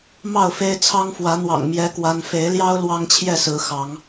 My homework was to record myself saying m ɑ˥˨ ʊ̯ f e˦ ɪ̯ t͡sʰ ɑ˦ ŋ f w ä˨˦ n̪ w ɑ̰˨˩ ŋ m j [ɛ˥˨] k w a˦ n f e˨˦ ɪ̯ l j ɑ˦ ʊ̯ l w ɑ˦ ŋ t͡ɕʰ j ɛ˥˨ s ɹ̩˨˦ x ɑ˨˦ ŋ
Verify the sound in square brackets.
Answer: incorrect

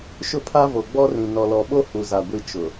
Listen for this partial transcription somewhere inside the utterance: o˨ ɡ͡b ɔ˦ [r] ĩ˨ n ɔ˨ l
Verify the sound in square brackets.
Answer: correct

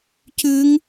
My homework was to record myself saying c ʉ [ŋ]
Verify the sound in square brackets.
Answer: correct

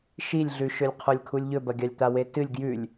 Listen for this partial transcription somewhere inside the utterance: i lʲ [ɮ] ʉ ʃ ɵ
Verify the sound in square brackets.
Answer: correct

